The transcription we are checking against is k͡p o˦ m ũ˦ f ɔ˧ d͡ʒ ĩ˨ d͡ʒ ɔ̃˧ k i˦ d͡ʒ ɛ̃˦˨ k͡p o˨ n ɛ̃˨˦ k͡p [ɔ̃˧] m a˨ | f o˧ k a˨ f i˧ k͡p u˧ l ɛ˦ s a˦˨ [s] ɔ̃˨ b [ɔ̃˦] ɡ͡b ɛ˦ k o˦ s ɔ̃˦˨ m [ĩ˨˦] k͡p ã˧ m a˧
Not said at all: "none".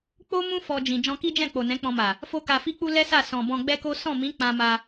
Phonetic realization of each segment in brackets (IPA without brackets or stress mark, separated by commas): ɔ̃˧, s, ɔ̃˧, ĩ˨˦